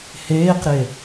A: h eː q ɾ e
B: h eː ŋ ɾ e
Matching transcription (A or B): A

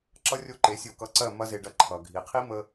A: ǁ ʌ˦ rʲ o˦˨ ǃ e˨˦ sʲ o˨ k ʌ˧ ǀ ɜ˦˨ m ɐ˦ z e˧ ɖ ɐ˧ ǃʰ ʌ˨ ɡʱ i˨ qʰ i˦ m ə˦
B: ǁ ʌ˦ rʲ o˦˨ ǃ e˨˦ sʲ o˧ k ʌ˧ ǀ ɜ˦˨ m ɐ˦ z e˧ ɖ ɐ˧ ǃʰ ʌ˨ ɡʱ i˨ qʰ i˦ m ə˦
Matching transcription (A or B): B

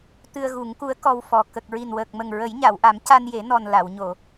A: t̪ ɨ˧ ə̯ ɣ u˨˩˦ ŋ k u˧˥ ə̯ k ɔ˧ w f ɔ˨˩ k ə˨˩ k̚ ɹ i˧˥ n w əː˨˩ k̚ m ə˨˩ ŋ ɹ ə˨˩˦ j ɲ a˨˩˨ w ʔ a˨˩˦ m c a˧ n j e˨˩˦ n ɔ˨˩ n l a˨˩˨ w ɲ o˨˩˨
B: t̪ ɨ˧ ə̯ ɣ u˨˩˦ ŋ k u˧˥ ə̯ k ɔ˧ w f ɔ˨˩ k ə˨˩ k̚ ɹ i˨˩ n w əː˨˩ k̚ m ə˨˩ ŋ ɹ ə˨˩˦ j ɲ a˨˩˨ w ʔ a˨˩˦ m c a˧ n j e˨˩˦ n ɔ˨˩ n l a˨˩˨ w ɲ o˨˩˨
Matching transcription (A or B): B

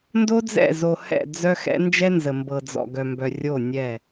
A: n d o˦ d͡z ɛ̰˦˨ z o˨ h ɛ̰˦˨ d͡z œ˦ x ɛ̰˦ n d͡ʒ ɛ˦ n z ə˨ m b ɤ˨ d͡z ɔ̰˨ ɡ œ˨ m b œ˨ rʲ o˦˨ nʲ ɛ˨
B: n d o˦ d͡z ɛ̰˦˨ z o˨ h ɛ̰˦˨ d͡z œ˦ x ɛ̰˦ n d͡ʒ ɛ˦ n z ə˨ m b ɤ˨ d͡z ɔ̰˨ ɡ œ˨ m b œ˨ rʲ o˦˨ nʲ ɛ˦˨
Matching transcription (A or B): B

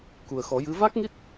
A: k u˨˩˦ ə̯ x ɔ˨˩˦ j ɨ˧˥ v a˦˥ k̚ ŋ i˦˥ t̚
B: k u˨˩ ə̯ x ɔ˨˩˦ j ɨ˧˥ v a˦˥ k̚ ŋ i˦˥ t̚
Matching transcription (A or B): B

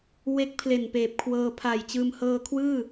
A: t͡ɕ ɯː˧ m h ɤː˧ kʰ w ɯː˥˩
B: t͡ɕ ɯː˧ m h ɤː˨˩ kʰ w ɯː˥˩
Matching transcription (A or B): A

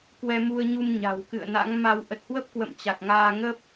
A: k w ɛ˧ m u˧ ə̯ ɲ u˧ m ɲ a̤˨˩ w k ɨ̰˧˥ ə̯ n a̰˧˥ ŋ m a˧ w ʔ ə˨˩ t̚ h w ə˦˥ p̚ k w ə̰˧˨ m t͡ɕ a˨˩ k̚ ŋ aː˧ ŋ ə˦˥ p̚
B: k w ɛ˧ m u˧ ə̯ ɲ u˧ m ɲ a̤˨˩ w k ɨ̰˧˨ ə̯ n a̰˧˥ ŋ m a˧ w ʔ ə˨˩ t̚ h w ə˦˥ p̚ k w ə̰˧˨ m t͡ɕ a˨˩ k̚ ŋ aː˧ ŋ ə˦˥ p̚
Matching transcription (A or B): B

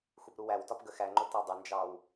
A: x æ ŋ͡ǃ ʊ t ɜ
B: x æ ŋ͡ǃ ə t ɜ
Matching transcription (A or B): A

